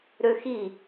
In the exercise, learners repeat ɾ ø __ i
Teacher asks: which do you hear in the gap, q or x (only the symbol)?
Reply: x